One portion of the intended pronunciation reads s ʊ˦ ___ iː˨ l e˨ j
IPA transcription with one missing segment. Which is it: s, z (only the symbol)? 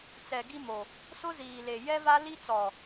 z